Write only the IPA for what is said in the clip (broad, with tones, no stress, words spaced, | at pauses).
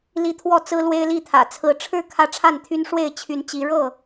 li˦t̪ʰwɔ˥˨ t͡sɹ̩˦lwe˦ɪ̯li˥˨t̪ʰä̰˨˩ t͡sʰɹ̩˨˦ʈ͡ʂʰɻ̩˥˨ kʰä˦ʈ͡ʂʰa˥˨nt̪ʰy˦n ʂwe˥˨ɪ̯t͡ɕʰy˨˦nt͡ɕi˨˦ ɻɤ˥˨